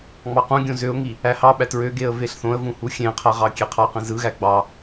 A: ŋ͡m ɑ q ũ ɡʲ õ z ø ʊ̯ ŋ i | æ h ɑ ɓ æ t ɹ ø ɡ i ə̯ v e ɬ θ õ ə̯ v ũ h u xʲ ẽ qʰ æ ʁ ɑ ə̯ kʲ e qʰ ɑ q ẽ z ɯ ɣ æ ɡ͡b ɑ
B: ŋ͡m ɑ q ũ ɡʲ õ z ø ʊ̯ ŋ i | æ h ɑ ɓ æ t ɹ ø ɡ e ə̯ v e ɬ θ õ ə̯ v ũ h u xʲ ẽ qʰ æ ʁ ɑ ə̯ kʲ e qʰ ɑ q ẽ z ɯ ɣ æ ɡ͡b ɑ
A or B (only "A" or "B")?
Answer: B